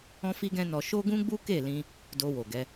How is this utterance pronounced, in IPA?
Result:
ɔ̃˦ f i˦ ɡ ɛ̃˦ n ɔ˧ ʃ o˦ ɡ ũ˦ ɡ͡b u˦ k e˦˨ l ĩ˧ | d o˧ w o˨ ɡ ɛ˨˦

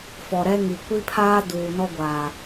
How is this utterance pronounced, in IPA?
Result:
f ɔ˨ ɾ ɛ˦ ŋ i˨ kʷ i˦ pʰ aː˦ d uː˨ n ɔ˦ ɡʷ aː˨

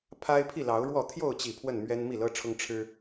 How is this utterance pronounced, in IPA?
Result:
pʰ a˦ ɪ̯ pʰ i˥˨ l ɑ˨˦ ʊ̯ ɻ w ɔ˥˨ t̪ʰ j o˥˨ ʊ̯ t͡ɕ i˨˩ pʰ w ə˥˨ n m ɥ ɛ˦ n m i˥˨ l ɤ˦ ʈ͡ʂʰ ʊ˦ ŋ ʈ͡ʂʰ ɻ̩˦

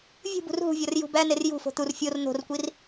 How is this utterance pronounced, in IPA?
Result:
vʲ ṳ b ṳ r ɦ ṳ vʲ ɒ r j ṳ b æ n e r j ṳ f o̤ t̪ u r fʲ o r n̪ o̤ r kʷ i r

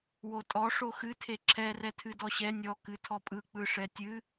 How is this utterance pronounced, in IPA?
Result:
w o tʼ ɔ ʂ o x ɨ tʰ e ǁʰ ɛ r ɛ tʰ ɨ d ɔ ɕ ɛ nʲ ɔ k ɨ tʰ ɔ pʼ ɯ k͡p ɯ ʂ ɛ tʲ ɨ

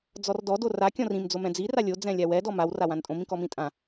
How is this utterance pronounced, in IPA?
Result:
d͡z ɔ r d ɔ d o r a kʲ ɔ̃ r ĩ m d͡z o m ɛ̃ d͡z i r a lʲ o d͡z ɛ̃ lʲ a w ɛ d ɔ m a w r a w ã n tʼ õ m ĩ k ɔ m ĩ tʼ ã

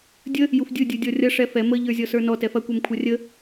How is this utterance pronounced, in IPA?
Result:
dʲ ə | j u f dʲ ɯ dʲ ɯ dʲ ɔ rʲ ɐ ʂ ɛ f ɛ m ə ʎ ə˞ zʲ ɔ s ə˞ n ɔ t ɛ f ɐ kʷ ɛ m kʷʰ ɐ rʲ ə

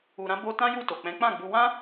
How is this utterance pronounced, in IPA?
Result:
u˨ ɾ ã˧ b o˧ t ã˦ j u˦˨ t o˨ k͡p ɛ̃˨˦ k͡p ã˦˨ ɡ͡b u˧ w ã˦

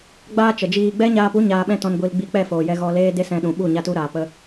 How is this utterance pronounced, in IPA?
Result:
ɡ͡b aː˦ t͡ʃ ə˨ d͡ʒ iː˧ ɡ͡b ɛ˦ ɲ aː˧ p u˦ ɲ aː˧ ɓ ɛ̃˦ t ɔ̃˧ n ɡʷ i˧ l ɡ͡b i˧ k͡p ɛ˦˨ f oː˨ j ɛ˧ ɣ ɔ˧ l eː˦ d e˦ s ɛ̃˧ ɗ ũ˨ ɓ u˦˨ ɲ a˦ t u˦ ɾ aː˨ p ə˧

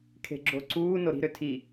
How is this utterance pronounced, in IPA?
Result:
kʰ e̤ ɡ͡ǁ o ǀ uː n o ɾ i̤ ɾ ø tʰ i

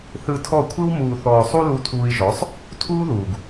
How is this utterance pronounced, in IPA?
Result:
θ ɯ˧ tʰ ɔ˦˨ kʷʰ ɯ˦ w m uː˨ θ ɔː˨ sˤ u˧ l u˧ tʰ uː˧ i̯ ʒ ɔ˨˦ sˤ | tʰ uː˦ ð uː˨ ɡ

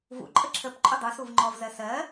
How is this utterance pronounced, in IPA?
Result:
v ṵ ǃʼ ə ǁʰ ə p ǃʼ ʊ dˤ u s u v ŋ͡ǃ ɔ v z ɜ s ɜ

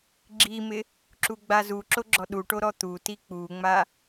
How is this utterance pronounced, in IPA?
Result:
ɡ͡ǁ i m ɪ | ǁ u ɡ͡b a z u ǁ o ɡ͡ǁ ɔ ɗ u ʈ o ɾ ɔ t̪ u t i k͡p u ŋ͡m a

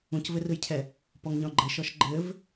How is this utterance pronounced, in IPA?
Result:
ũ c v ɘ r ɯ j cʰ ɛ | p ɔ ŋ ɲ ɔ̃ ɡ͡ǃ ɘ ʃ ɔ ʃ ɡ͡ǃ ɘ v

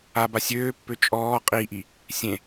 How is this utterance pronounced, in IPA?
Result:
a b a sʲ øː pː ø t͡ʃʼ ɔː qʼ i ʔ i | sʲ ẽ

